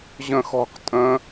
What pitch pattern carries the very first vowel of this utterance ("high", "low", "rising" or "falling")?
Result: falling